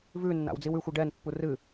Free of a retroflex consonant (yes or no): no